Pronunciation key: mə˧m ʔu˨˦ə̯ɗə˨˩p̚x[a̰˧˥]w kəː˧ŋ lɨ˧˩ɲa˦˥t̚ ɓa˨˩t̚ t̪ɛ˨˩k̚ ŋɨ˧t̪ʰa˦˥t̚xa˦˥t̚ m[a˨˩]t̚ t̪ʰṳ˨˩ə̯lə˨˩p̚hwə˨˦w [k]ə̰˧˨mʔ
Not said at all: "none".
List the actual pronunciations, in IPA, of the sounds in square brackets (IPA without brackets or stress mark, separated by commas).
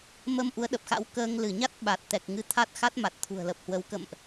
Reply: a̰˧˥, a˨˩, k